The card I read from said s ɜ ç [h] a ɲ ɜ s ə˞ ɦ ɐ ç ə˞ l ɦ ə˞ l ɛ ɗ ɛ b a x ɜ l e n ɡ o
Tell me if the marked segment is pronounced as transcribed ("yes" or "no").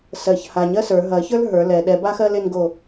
yes